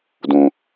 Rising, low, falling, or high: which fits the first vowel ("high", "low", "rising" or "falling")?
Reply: low